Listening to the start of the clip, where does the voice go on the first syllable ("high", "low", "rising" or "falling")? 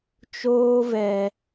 high